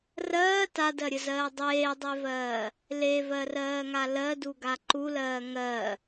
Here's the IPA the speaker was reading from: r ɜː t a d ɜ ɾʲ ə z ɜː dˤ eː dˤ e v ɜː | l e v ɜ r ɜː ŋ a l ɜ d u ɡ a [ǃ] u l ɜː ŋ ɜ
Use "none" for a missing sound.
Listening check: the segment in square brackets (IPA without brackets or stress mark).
ǃ